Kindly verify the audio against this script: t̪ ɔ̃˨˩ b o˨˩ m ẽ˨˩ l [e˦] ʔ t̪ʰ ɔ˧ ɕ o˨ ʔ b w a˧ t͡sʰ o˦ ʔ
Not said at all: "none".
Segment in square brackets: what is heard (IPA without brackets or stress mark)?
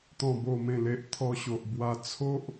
e˨